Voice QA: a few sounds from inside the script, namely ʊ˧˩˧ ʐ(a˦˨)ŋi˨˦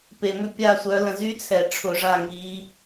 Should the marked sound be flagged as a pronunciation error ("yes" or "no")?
no